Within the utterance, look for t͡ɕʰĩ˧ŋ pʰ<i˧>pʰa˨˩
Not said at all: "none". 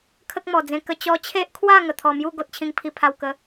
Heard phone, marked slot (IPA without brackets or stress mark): i˨˩